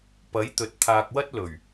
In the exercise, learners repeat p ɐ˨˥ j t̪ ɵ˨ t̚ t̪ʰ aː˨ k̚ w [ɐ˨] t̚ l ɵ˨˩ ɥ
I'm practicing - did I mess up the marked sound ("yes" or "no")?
yes